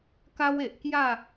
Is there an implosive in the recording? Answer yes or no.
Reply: no